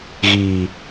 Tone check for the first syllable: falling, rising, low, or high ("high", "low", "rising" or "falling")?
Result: low